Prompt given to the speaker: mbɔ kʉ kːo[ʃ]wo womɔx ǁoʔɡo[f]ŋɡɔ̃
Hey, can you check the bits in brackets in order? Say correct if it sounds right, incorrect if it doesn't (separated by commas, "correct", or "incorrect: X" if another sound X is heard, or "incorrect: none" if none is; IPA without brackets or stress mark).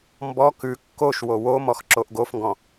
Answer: correct, correct